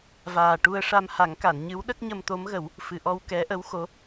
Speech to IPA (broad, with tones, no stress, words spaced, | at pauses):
vaː˨˩ʈu˧ə̯ʂa˧m ha˨˩˦ŋka˨˩˨nɲɨ˧˥w ɗə˦˥k̚ɲə˧mt̪o˧˥mɣə˨˩˦w | fɨ˨˩ʔɔ˧w kɛ˧˥ʔə˧˥w xo˧˥